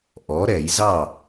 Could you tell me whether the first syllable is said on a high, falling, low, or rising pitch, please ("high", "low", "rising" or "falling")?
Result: rising